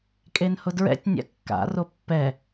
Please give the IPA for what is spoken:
kʼ e n h ʊ d ɹ ɛ̰ tʲ nʲ a̰ kː a̰ r o pː ɛ

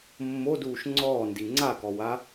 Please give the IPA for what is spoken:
mː o d uː ʃ ŋ͡ǀ ɔː n d i ŋ͡ǀ a k ɔ w a

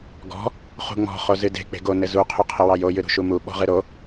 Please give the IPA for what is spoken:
ɡ ɔ̤ | χ ṳ ŋ͡m ɔ̤ χ o z ɨ d e̤ k͡p e̤ ɡ o n ɘ z u qʰ u qʰ ə w ɑ j o j ɨ ɾ ṳ ʃ u m u ɓ ɔ̤ ʁ ɨ ɾ o

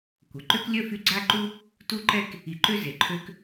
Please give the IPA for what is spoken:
kʷ ə˩ ǃ ø˦ k lʲ œ˦ f y˦ ɡ͡ǀ a˥ ǃ u˥ | t u˦ ǃ ɛ˦ k | i˨ ǃ ø˥ z e˩ ǃʰ ø˦ k

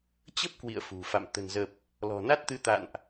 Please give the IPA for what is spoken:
t͡ɕ ə˦˥ p̚ k w ḭ˧˨ ə̯ f ṳ˨˩ f a̰˧˨ m t̪ ə̤˨˩ n z ə˨˩ p̚ | l ɔ̤˨˩ n a˦˥ t̚ t̪ ɨ˨˦ t̪ a̰˧˨ n ʔ

